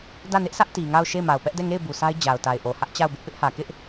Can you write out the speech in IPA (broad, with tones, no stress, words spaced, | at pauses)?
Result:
dä˦˨nɪ˦ʔsʰä˦ʔ ti˨ŋa˦˨ʊ̯ ʃe˦˨ɪ̯ma˨ʊ̯pɛ˦ʔ dɛ˦˨ŋe˦˨ɪ̯ bu˨sʰa˦ɪ̯ d͡ʑa˨ʊ̯ta˨ɪ̯ʔo˨ hä˦ʔt͡ɕa˦˨ʊ̯bɪ˦ʔ pɪ˦ʔhä˨kɪ˦ʔ